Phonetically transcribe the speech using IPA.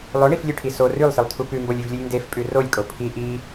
lˠoɳiflʲʉʈʰi so rʉlˠsɨlˠtʰu pʉmbolʲʉvlʲɨlʲ ndefpʼʉ rolʲkʼo pʰi ʔi

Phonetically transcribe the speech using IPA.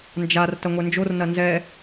nd͡ʒar tɐŋʷɛnd͡ʒor nɐnzɛ

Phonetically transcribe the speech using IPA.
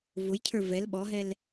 vʊjcʰə˞ vɛl ɓɔɦɛl

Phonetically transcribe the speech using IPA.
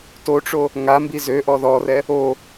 toʈ͡ʂo | ŋambi zøʔɔ ðɔrɛ | o

